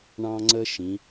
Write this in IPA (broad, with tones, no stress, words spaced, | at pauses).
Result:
ɳɑ̃˥ŋ͡ǀə˥ ʃĩ˩˧